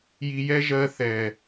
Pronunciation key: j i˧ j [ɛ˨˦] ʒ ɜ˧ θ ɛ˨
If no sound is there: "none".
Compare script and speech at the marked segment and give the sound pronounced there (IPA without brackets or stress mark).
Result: ɛ˦